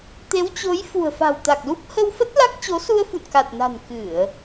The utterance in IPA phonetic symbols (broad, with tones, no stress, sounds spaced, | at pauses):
t̪ e˨˦ w t͡ɕ o˨˦ j f ṳ˨˩ ə̯ f a̤˨˩ w t̪ a˨˩ k̚ l u˦˥ p̚ h ə˧ w f ə˦˥ t̚ l a˦˥ k̚ t͡ɕ o˨˦ s u˧ ə̯ f ṵ˧˨ n k a˨˩ t̚ n a̤˨˩ n k ɨ˧˩˨ ə̯